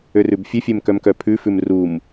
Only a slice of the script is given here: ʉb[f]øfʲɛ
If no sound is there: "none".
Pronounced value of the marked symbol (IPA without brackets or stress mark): fʲ